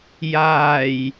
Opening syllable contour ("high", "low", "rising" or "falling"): low